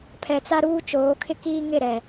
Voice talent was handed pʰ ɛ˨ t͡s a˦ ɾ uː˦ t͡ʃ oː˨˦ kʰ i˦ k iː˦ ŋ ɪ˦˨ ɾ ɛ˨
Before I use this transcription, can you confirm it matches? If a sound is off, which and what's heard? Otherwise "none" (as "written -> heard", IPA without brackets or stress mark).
i˦ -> ɪ˦